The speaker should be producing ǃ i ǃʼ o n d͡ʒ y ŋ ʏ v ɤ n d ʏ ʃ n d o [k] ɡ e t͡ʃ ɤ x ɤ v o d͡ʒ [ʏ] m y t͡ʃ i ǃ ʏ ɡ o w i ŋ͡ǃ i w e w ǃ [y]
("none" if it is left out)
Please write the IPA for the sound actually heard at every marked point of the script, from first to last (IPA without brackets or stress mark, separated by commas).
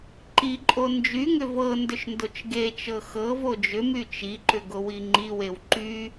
t͡ʃ, ʏ, y